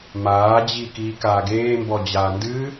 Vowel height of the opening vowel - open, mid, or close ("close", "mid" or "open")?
open